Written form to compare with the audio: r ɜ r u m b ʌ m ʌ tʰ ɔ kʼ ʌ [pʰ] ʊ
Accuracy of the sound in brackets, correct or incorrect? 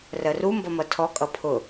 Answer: correct